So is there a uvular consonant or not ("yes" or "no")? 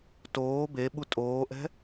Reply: no